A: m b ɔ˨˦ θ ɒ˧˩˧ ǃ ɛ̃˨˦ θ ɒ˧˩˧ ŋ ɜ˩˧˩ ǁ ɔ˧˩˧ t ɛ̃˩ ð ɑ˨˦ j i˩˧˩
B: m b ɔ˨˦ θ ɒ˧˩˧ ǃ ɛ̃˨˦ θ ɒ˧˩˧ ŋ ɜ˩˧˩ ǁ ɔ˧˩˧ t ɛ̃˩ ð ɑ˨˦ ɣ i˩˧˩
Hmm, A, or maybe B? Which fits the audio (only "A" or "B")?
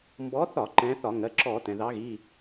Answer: B